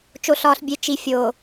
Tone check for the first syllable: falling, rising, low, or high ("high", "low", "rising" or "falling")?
low